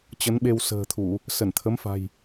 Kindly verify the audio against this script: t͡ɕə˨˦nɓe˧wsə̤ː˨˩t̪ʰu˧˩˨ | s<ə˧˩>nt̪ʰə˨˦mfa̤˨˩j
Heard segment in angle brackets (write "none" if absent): ə˧˩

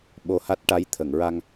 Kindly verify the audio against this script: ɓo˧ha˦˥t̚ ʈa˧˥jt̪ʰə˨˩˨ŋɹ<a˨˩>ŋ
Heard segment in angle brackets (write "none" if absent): a˧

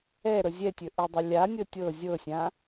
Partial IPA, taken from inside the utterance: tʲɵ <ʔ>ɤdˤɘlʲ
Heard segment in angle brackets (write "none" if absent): ʔ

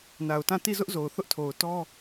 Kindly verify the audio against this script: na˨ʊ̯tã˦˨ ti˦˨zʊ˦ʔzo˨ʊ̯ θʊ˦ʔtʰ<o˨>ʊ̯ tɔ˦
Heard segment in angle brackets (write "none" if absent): o˨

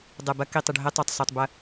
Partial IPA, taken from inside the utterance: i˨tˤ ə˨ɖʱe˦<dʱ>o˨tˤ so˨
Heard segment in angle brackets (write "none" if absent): tˤ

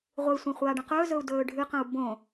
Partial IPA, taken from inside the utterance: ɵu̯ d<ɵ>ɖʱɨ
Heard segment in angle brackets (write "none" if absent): ɵː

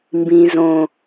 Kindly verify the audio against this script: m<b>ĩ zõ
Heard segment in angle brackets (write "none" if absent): b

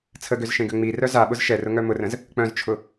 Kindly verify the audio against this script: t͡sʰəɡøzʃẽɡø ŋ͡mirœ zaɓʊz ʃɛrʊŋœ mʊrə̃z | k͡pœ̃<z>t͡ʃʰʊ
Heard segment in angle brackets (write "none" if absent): z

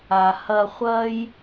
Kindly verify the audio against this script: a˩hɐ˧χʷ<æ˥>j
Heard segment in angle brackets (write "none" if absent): ɐ˥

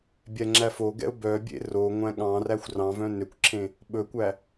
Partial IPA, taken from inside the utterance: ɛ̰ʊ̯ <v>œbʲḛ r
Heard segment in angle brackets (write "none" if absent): b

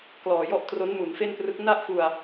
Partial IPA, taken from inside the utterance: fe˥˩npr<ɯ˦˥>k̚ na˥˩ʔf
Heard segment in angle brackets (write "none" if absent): ɯ˦˥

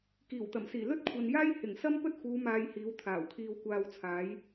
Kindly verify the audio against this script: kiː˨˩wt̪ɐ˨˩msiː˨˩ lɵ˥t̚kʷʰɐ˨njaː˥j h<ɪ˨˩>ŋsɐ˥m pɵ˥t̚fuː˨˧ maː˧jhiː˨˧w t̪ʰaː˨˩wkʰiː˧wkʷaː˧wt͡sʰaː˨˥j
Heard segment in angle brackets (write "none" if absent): ɪ˨˩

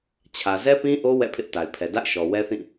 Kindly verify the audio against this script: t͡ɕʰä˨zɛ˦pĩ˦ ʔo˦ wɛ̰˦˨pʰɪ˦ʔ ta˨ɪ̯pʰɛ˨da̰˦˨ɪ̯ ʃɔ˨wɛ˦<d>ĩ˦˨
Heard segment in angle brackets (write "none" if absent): θ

